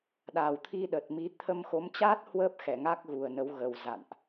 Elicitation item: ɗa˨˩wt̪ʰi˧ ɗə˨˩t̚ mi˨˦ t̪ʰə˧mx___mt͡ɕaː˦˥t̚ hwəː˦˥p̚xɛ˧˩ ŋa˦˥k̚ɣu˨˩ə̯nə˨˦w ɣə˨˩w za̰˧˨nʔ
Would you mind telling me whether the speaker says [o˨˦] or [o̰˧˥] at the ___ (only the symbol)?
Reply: o˨˦